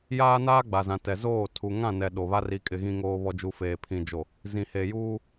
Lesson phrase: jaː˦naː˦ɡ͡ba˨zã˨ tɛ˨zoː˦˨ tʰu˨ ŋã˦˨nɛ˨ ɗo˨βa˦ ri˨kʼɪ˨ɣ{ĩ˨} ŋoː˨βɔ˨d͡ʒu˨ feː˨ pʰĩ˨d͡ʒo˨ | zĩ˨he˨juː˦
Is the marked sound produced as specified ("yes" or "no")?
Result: yes